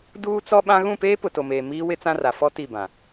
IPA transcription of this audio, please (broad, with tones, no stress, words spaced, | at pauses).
duː˦t͡sɔ˦ɓã˦ ɣũ˦˨peː˦ pʊ˨to˨meː˨ miː˦ wɪ˦t͡sã˦ra˨ fɔ˦ ti˦˨bã˨